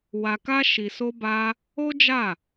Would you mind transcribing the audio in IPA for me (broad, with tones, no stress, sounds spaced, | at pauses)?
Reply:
w a˧ k a˦ ʃ i˧ s o˦ b a˦ | o˦ d͡ʒ a˦˨